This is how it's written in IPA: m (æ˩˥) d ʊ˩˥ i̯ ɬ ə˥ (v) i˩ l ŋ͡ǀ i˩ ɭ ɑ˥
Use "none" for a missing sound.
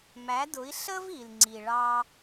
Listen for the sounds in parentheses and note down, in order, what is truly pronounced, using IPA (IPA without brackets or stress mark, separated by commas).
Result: æ˩˥, v